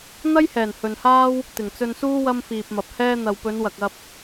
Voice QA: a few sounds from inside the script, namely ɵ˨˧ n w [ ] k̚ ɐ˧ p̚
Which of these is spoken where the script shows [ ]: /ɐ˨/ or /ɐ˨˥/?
ɐ˨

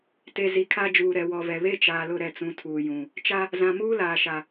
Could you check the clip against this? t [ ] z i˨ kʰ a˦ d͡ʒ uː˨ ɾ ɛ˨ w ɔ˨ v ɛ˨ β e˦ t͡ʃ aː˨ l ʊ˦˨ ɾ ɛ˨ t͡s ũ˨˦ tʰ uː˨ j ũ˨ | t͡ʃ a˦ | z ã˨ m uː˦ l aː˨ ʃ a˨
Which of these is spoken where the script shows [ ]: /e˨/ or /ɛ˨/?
e˨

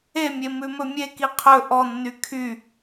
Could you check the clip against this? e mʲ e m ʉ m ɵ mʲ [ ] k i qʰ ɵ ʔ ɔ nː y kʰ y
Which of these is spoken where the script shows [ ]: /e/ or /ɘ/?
e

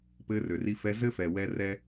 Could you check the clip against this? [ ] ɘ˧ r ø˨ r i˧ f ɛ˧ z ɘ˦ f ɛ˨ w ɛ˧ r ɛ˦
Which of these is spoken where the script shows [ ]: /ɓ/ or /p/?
p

